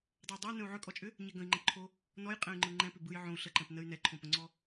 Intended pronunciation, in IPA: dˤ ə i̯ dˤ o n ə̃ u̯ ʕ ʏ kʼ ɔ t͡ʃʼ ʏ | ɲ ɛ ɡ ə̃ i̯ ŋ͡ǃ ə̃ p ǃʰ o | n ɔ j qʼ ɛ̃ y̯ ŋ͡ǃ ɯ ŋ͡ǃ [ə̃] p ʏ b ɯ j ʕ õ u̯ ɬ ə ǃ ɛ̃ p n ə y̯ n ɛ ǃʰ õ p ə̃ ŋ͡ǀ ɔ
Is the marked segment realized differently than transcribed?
yes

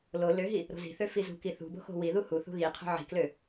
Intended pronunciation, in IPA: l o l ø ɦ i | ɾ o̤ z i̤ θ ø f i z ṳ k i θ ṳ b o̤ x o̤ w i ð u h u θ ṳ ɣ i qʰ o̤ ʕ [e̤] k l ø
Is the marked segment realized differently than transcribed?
yes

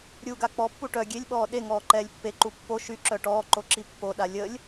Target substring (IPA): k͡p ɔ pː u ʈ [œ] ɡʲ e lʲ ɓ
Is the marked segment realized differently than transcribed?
no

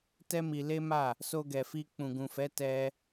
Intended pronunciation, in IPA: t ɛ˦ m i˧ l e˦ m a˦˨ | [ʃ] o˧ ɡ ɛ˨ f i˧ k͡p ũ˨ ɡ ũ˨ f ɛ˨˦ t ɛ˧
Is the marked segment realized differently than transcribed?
yes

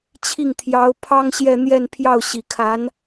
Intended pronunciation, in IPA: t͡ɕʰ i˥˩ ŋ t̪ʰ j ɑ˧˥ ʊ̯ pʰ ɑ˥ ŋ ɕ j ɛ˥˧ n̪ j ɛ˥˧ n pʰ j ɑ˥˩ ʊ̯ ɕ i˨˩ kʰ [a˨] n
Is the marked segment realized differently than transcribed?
yes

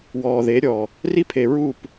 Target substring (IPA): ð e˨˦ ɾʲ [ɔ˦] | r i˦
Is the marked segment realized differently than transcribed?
yes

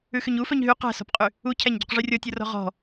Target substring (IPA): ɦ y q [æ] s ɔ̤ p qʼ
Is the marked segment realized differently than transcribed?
yes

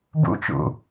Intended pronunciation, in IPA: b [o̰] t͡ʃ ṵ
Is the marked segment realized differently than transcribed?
yes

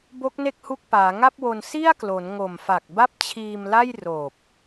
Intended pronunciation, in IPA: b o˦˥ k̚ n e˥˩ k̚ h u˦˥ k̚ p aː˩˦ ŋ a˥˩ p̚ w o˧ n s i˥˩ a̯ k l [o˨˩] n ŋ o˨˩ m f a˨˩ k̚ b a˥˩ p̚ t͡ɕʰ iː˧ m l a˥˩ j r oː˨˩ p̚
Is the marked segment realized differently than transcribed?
yes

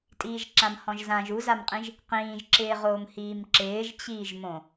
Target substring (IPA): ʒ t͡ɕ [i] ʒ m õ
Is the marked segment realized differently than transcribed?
yes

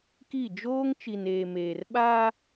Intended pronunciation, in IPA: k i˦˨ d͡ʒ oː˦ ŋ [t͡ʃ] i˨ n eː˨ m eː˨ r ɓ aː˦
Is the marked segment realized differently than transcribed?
no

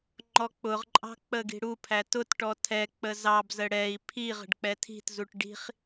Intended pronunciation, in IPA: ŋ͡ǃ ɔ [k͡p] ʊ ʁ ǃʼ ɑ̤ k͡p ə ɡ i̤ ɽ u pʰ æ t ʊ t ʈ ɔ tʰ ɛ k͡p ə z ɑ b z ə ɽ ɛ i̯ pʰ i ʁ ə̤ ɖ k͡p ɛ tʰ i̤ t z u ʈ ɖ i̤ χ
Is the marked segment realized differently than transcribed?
no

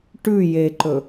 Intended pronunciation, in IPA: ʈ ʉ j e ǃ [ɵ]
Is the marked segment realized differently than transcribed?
no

